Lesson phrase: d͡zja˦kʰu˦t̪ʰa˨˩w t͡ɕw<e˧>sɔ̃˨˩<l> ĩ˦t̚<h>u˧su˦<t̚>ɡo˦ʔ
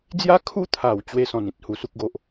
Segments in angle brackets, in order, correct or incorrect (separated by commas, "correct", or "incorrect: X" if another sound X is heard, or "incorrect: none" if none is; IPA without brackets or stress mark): correct, incorrect: n, correct, incorrect: k̚